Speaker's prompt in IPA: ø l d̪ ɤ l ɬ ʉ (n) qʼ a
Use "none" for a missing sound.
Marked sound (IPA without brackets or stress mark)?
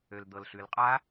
l